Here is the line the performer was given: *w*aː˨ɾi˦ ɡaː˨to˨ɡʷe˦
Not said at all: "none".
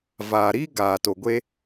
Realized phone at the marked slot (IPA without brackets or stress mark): v